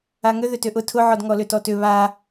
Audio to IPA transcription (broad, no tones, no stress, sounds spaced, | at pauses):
a ŋ ʏ ð ʏ t ʏ ʔ ʊ tʰ ʊ ʕ ɔ d ŋ ɔ l ʏ t ɔ t ʏ β a